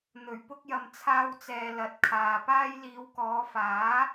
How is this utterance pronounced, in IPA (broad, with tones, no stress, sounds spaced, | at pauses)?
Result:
n̪ ɵ˨˩ ɥ p ʊ˧ k̚ j ɐ˨ m t͡sʰ aː˥ w t͡s ɛː˧ l ɐ˨˥ t̚ kʰ aː˨ p aː˥ j l iː˨˧ w k ɔː˨˧ f aː˨˥